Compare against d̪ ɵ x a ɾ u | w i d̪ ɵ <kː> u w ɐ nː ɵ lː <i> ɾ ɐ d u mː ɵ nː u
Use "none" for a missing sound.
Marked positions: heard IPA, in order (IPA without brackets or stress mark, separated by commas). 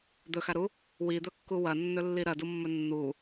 kː, i